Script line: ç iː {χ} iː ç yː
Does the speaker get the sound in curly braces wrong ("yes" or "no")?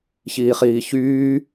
no